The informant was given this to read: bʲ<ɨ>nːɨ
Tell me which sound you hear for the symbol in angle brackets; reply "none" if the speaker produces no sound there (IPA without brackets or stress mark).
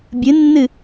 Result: ɨ